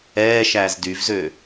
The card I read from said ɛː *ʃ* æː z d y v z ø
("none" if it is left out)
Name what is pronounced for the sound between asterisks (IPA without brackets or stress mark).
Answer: ʃ